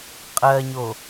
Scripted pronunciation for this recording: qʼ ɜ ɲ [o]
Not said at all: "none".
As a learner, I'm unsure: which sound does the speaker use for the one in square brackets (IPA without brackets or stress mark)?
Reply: o